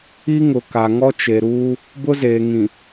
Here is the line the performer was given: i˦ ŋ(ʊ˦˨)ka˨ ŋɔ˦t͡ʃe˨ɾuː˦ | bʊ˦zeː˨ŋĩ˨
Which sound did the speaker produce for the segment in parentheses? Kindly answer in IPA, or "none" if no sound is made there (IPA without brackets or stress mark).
ʊ˨